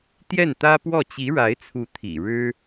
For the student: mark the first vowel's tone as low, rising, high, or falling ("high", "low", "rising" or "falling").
falling